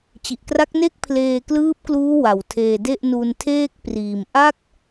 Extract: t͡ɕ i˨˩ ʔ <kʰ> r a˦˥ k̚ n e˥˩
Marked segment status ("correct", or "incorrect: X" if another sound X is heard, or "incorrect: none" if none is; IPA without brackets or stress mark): incorrect: k